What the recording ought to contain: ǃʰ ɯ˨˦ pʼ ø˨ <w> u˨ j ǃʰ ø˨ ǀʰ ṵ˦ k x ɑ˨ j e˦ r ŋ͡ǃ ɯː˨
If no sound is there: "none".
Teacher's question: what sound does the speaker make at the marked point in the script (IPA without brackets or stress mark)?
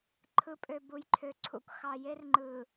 b